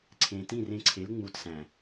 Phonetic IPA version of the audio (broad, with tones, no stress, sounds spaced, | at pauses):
ǀʰ ẽː˨ t ĩ˦˨ r ẽ˧ ǀʰ e˨˦ l ŋ͡m u˨ t s æ̃˨